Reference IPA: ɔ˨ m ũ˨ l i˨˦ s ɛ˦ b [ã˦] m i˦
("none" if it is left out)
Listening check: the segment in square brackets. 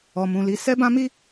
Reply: ã˦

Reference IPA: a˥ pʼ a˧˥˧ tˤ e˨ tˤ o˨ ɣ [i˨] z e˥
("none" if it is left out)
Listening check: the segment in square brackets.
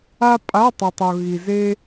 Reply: i˨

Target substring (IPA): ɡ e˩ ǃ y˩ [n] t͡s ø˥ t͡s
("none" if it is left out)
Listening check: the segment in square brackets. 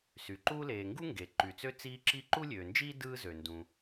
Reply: none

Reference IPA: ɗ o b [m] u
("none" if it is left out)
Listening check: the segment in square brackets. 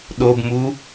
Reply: m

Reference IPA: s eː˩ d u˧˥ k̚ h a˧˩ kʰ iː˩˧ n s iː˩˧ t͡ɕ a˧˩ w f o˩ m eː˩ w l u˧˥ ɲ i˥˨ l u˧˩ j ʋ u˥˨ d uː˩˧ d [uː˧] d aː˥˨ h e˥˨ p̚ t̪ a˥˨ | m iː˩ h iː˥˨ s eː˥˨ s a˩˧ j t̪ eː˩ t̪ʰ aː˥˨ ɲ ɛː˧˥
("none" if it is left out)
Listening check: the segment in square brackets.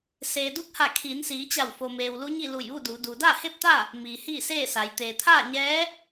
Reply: uː˩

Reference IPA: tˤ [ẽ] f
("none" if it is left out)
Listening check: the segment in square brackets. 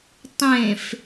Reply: ẽ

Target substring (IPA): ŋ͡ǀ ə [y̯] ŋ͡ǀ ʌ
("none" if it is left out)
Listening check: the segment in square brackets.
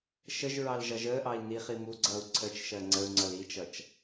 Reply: u̯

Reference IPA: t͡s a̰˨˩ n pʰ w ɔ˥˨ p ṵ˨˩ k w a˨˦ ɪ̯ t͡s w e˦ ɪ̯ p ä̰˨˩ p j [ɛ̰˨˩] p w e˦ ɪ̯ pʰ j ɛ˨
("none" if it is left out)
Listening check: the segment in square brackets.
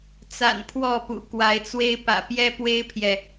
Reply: ɛ˦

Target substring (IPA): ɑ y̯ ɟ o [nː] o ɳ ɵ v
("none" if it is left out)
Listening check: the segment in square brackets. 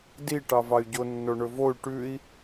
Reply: nː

